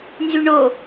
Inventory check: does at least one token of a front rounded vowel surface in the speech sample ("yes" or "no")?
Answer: yes